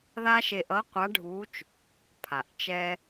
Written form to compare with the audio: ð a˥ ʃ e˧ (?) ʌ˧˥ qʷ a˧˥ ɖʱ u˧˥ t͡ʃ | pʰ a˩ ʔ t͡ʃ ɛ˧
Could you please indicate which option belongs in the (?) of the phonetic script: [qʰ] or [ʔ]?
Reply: ʔ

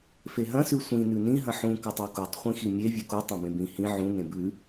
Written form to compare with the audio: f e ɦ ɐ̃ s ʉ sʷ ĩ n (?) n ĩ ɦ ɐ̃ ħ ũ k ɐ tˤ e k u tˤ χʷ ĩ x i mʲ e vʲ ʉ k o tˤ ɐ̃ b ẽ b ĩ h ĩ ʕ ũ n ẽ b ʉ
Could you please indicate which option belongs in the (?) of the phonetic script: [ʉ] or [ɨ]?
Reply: ʉ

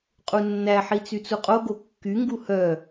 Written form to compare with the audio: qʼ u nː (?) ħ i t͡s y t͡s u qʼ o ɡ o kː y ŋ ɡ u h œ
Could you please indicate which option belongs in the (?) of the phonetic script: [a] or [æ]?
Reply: æ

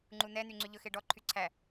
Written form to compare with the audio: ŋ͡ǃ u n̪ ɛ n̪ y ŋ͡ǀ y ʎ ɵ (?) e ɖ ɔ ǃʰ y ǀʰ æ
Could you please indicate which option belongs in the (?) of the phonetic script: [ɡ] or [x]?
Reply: x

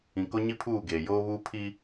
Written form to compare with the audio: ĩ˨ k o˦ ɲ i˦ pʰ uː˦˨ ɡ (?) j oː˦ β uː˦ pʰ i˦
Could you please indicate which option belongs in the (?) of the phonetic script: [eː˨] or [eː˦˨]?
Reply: eː˨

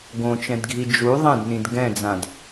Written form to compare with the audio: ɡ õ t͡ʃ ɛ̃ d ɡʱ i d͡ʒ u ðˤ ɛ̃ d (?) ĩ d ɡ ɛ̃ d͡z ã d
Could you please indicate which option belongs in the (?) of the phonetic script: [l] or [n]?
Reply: n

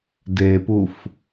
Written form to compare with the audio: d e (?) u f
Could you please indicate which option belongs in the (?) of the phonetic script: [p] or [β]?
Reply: p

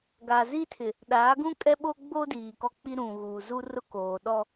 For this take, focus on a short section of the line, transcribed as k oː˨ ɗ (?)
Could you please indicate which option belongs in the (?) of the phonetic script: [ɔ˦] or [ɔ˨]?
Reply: ɔ˦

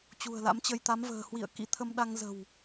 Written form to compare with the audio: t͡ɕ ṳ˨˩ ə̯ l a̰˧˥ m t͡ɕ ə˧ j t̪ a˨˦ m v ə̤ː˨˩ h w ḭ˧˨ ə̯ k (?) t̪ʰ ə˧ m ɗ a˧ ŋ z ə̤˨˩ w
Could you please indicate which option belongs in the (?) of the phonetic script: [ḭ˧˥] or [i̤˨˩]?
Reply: ḭ˧˥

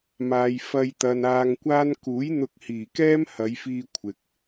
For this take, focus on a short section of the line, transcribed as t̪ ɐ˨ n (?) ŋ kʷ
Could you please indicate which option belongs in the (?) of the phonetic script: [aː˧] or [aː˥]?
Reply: aː˧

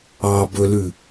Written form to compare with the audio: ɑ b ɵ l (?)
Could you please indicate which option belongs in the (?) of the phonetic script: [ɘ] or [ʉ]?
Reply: ʉ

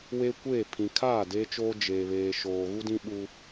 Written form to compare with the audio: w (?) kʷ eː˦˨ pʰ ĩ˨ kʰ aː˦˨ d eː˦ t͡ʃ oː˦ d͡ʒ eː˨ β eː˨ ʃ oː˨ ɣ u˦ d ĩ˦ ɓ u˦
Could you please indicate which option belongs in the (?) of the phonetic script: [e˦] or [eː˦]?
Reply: e˦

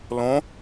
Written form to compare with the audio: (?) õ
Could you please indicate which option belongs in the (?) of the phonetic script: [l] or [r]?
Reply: l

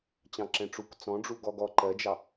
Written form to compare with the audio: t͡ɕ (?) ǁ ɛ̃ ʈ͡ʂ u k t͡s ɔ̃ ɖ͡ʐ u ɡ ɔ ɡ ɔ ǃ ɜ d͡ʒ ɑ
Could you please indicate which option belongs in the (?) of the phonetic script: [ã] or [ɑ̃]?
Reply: ɑ̃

